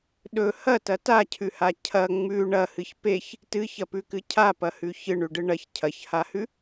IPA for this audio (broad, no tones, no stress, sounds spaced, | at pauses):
ɗ ɵ h ɐ t ɐ t a cʰ ʉ h a cʰ ɐ ŋ͡m ʉ ɳ ɐ h ɨ ç p e ç | t ɨ ç ɐ p ʉ k ɨ cʰ a p ɐ h ʉ ç ɨ ɳ ʉ ɖ ɨ ɳ ɐ ç cʰ ɐ ç h a h ʉ